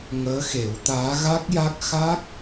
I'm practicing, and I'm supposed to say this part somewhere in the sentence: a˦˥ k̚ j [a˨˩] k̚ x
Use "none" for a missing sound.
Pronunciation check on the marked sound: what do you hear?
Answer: a˦˥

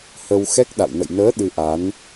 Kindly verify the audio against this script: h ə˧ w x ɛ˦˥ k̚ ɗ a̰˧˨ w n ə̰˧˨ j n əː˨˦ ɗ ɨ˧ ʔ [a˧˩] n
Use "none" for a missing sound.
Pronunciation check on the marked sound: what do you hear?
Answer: a˨˦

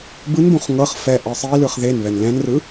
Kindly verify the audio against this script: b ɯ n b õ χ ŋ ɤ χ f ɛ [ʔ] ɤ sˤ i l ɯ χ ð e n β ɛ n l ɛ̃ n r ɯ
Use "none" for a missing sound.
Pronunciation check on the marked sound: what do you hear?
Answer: ʔ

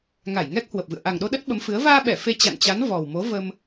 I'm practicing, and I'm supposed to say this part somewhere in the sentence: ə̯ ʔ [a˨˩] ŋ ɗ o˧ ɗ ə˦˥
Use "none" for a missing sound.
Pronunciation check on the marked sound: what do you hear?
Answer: a˨˩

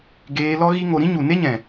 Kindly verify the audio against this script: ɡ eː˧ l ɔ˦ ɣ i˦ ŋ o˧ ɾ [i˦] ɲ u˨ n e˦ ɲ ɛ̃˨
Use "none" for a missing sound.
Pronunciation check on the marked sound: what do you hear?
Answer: ĩ˦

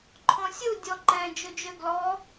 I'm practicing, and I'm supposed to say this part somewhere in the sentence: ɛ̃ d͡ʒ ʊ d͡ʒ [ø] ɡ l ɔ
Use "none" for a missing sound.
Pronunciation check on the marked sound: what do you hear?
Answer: ø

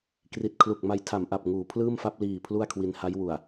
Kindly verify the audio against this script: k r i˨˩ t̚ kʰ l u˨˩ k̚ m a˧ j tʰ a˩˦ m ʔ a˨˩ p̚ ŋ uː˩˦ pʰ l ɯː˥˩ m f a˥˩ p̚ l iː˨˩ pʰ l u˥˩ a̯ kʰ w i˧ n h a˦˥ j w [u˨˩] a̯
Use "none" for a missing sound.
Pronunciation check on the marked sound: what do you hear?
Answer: u˨˩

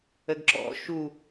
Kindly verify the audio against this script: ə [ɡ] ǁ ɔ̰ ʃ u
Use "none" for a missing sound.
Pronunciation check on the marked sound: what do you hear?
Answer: ɡ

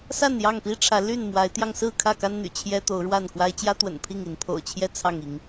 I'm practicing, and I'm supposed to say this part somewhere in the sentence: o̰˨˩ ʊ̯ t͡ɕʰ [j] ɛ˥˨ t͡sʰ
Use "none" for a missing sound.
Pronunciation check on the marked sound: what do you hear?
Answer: j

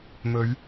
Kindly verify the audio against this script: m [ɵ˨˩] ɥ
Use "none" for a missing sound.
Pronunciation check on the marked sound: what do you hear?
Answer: ɵ˨˧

